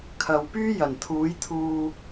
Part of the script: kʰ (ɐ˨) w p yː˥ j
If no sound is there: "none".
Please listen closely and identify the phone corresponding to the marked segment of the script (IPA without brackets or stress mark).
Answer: ɐ˨